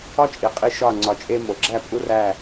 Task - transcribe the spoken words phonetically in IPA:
ɒ˦t͡ʃʼi˨qʼi˧ ʃɒ˦˨ ŋ͡ǀɒ˧t͡ʃʼe˦ mo˨ɡ͡ǁæ˦˨ pʼu˦ræ˦˨

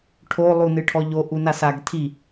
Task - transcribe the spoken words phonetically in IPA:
ʈʰolˠunɨ ʈʰɔʎoʔunas aɡtʰi

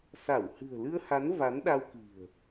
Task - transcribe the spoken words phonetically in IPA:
sa˧˩w hɨ̤˨˩ə̯lɨ˧ə̯ha˨˦n va˨˦nɗa˧wki̤˨˩ə̯

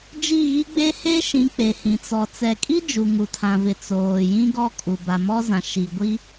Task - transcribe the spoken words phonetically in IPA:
d͡ʒi˦˨ɣi˦ ɡ͡be˦he˦ʃĩ˨˦ k͡pe˨hĩ˨t͡sɔ˨ t͡sɛ˨kʼi˦ d͡ʒu˨ŋu˨tʰã˨vɪ˨ t͡soː˨jĩ˦ɡɔ˦ kʼu˨ ba˨mɔ˦zã˨ ʃi˨ɡʷi˦

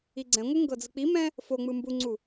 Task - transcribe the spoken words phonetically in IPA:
iɡ͡ǀɛ̃ŋʷɯ ŋɡɤd͡zɯk͡pimɛ̃ | foŋ͡mɯ mbuŋ͡ǀu

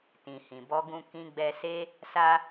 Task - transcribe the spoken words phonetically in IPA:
tĩ˨hĩ˨bɔ˧ɡũ˧ kĩ˧ɡ͡bɛ˧se˦ | sa˧

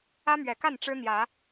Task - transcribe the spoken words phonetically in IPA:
ä˦mɥɛ˨˩ka˥˨n ʈ͡ʂɻ̩˦n̪jä˨˦

